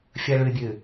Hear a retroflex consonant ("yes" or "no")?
yes